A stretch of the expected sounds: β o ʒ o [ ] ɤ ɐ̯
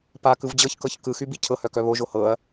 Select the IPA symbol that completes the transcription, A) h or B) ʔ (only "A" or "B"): A